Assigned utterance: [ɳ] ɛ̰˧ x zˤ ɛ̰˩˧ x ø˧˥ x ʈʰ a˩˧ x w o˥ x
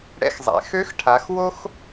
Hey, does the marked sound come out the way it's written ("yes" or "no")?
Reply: no